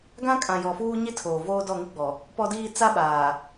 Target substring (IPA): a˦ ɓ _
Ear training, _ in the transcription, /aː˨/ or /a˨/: aː˨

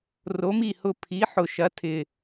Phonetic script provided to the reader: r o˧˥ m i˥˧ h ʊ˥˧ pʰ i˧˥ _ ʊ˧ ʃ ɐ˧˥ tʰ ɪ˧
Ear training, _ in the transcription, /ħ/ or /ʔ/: ħ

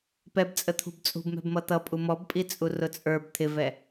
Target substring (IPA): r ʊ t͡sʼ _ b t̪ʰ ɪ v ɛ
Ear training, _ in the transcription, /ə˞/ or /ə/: ə˞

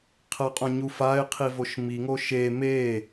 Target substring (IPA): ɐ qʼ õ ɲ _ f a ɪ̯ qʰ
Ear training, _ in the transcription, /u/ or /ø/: u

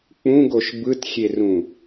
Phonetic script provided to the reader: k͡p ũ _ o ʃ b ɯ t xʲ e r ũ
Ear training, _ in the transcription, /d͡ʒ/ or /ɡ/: ɡ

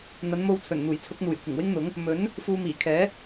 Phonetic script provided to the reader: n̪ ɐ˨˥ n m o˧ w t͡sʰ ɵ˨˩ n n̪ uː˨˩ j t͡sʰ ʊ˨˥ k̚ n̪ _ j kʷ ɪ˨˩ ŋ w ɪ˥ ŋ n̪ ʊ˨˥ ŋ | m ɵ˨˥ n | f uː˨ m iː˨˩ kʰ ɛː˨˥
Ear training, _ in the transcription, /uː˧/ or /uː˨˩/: uː˨˩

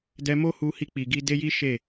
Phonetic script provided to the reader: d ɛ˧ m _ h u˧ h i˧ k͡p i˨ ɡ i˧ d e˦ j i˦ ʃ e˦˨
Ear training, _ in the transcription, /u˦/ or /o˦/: o˦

